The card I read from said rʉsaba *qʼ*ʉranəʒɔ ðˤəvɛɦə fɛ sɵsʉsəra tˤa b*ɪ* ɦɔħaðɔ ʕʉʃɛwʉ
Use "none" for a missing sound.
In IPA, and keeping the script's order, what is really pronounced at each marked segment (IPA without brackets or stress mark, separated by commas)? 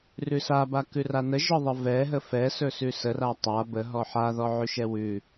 k, ə